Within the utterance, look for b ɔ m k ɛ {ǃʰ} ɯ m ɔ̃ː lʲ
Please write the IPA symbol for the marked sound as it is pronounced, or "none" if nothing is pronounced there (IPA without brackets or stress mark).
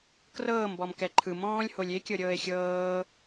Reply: ǃʰ